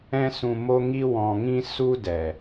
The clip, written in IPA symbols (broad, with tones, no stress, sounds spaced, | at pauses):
ɛ̃˦ s ũ˧ m o˦ ŋ i˦ w ɔ̃˨ ŋ ĩ˧ s u˦ d ɛ˨